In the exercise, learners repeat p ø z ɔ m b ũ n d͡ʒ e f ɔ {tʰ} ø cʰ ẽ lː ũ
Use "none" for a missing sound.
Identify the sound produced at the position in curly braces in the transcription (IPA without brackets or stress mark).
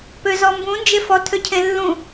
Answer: tʰ